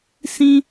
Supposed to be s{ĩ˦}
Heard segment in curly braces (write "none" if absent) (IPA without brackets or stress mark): ĩ˦